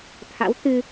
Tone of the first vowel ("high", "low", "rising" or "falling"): rising